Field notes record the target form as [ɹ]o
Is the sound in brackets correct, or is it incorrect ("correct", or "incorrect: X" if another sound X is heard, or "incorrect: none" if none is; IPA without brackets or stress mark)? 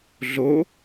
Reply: incorrect: ɮ